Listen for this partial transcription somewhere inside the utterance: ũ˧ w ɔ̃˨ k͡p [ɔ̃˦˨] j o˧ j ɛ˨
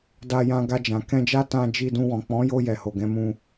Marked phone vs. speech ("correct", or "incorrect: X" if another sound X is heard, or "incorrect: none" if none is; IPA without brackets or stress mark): incorrect: ɔ̃˨˦